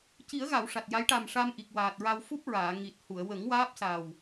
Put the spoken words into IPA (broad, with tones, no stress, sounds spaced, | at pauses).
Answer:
c i˨˩˦ ə̯ ɣ a˨˩˨ w ʂ a˨˩ t̚ j a˧˥ j ʈ a˨˩ m ʂ a˧ m ʔ i˨˩ k̚ w aː˨˩ t̚ ɹ a˧ w f u˦˥ p̚ ɹ aː˨˩˨ ŋ i˨˩ t̚ h u˨˩˨ ə̯ w ə˨˩˦ ŋ w aː˦˥ p̚ s a˨˩ w